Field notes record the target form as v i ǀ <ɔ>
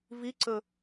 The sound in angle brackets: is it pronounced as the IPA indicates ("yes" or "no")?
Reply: no